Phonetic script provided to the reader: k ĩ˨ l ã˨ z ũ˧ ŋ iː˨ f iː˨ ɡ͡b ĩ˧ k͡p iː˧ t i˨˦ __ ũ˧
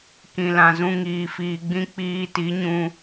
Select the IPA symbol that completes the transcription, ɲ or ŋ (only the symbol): ɲ